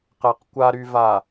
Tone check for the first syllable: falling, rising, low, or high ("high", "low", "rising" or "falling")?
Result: low